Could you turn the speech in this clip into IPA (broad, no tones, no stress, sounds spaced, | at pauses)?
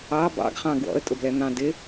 ɑ b ɑ̰ ɡ χ ɑ̃ ɡ w ɔ̰ ə̯ tʼ ʊ b l ɛ n̪ ɑ̃ d ɪ